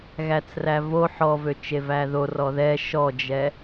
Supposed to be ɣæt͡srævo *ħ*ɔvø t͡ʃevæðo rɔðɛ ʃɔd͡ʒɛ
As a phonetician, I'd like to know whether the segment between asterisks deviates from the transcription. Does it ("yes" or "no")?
no